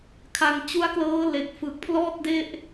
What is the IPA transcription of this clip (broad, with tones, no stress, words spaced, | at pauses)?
kʰa˧ŋ t͡ɕu˦˥a̯klɤː˦˥le˨˩k̚ fɯ˨˩k̚ pʰlɔː˥˩t̚de˥˩ʔ